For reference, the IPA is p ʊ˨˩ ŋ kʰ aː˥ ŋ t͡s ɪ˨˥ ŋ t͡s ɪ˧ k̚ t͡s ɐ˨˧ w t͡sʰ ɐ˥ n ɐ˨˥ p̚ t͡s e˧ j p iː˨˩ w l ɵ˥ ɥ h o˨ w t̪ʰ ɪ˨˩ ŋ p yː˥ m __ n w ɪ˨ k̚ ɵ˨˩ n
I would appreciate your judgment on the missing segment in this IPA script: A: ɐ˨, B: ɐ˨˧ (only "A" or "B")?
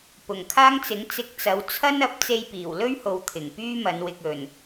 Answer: B